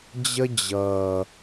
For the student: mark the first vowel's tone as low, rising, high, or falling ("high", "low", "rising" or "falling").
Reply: high